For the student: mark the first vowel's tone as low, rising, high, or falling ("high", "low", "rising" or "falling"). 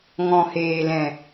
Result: low